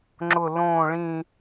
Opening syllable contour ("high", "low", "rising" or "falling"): low